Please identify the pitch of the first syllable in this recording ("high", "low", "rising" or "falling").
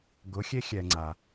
rising